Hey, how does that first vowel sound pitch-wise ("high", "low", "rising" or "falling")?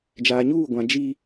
low